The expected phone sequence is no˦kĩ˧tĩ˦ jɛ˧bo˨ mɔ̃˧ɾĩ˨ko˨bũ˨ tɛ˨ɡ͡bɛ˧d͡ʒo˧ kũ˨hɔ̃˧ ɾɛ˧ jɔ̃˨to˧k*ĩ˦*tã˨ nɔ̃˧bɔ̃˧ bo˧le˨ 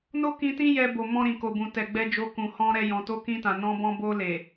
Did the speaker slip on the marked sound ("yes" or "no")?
yes